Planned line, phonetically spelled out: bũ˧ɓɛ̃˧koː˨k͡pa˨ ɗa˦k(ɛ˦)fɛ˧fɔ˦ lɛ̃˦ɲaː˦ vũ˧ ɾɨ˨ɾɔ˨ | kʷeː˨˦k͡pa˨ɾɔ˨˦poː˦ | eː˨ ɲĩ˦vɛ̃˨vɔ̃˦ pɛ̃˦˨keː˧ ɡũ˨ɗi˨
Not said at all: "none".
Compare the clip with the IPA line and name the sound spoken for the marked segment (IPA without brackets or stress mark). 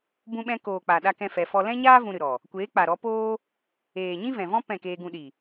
ɛ̃˦